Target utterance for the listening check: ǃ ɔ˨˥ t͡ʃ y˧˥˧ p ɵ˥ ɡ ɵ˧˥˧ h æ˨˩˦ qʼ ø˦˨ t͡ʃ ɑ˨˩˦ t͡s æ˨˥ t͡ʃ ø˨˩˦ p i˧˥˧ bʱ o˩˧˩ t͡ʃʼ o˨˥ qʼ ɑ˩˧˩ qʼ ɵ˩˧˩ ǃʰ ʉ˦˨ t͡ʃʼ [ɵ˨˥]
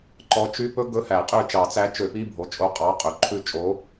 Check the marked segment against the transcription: incorrect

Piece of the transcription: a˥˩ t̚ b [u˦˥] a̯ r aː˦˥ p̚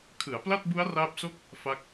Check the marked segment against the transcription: correct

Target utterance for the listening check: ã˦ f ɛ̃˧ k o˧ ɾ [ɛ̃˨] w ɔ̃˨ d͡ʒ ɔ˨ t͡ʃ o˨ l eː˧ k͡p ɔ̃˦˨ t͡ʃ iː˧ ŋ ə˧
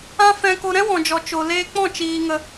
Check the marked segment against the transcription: incorrect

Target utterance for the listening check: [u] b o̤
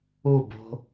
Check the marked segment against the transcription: correct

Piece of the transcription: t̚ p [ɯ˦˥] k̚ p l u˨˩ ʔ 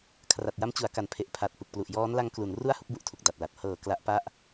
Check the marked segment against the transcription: incorrect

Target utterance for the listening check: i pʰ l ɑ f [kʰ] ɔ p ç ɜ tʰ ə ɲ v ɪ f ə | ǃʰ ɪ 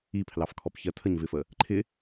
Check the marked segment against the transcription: correct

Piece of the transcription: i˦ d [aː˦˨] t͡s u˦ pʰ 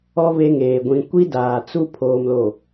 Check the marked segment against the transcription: incorrect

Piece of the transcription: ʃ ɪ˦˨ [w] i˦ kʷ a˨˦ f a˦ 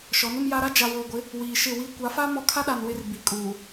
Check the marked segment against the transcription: correct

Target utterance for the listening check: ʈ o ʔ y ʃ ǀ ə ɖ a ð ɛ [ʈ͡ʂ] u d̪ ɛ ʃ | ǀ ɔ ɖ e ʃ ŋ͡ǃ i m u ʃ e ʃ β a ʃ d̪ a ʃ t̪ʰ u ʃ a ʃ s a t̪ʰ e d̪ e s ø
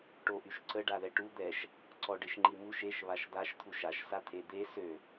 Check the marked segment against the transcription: incorrect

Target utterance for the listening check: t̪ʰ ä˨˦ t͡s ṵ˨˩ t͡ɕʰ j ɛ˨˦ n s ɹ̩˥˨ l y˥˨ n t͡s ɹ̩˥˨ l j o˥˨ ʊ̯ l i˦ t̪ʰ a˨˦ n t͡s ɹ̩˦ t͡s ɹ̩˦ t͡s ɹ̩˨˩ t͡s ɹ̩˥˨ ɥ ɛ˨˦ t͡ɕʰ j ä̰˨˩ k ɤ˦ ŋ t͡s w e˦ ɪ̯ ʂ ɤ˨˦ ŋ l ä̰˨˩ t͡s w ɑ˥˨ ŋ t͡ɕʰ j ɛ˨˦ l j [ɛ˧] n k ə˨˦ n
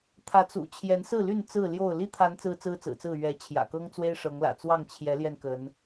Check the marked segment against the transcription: correct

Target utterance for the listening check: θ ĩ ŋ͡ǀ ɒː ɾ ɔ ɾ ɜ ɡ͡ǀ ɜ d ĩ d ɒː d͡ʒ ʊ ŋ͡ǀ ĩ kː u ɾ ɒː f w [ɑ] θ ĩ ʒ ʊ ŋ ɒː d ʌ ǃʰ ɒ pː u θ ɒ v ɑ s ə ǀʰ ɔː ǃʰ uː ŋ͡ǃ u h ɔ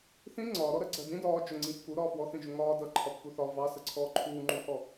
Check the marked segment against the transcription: incorrect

